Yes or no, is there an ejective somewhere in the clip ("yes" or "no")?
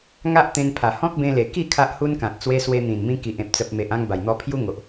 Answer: no